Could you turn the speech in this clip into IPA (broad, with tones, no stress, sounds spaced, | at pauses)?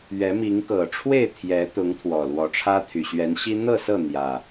ɥ ɛ˨˦ m i˨˦ ŋ k ɤ˨˩ ʈ͡ʂʰ w e˥˨ ɪ̯ t̪ʰ j ɛ˨˦ t̪ ʊ˨˦ ŋ t̪ʰ w ɔ˨˩ l w ɔ˨˦ ʈ͡ʂʰ ä˦ t̪ʰ y˨˩ ɕ ɥ ɛ˨˦ n ɕ i˦ n̪ ɤ˥˨ s ɤ˥˨ n̪ j ä˨˩